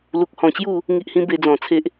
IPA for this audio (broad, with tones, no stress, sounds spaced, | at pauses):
l u˨ k̚ h ɔ̃˨˩ t͡ɕ j u˥˧ | ŋ i˦ ʔ h ĩ˦ b e˧ d͡z ɔ̃˨˩ t͡sʰ e˦ ʔ